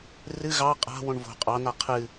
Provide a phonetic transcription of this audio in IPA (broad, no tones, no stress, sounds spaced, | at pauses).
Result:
r ɨ ɣ ɑ qʼ a̤ w õ ɳ v o̤ qʼ ɑ n a qʰ ɨ